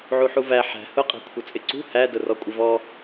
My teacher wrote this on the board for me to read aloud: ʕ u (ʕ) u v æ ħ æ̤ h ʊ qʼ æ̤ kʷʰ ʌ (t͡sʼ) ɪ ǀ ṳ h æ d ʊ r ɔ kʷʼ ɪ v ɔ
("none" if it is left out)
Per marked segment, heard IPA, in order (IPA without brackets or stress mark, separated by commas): ħ, t͡sʼ